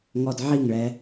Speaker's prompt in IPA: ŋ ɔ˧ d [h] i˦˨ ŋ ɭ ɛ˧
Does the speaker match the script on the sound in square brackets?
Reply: no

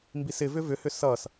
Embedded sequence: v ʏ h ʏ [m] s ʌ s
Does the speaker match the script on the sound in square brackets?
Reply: no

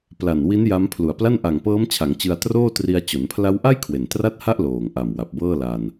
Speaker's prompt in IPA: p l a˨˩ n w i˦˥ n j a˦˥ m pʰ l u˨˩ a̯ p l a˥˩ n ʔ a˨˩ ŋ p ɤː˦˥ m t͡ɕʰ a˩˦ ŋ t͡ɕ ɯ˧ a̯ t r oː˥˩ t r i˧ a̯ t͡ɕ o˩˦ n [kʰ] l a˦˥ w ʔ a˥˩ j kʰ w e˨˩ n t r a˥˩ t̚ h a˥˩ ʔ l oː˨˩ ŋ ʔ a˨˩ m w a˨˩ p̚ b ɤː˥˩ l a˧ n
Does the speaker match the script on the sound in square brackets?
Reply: no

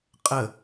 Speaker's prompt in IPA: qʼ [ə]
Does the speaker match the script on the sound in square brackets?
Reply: yes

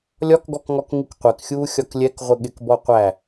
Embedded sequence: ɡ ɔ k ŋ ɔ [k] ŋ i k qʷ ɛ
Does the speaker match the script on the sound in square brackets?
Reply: yes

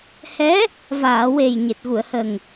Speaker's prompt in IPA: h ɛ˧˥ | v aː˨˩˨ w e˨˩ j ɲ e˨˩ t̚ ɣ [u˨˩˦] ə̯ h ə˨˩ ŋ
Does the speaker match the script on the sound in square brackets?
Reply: no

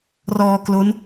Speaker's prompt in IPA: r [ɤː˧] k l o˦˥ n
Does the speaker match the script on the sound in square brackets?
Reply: no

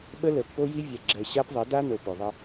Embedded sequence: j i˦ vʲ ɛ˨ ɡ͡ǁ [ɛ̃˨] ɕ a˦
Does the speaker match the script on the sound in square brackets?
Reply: no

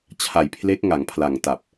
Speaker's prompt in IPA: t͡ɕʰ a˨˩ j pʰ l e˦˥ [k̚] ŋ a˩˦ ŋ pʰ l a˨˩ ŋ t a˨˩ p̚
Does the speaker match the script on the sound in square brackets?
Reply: yes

